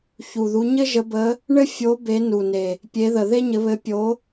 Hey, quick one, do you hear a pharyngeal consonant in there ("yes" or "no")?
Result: no